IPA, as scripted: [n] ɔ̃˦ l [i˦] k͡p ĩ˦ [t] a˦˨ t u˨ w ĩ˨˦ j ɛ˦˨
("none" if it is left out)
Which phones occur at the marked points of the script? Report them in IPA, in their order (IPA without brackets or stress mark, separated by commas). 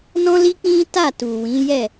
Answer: n, i˦, t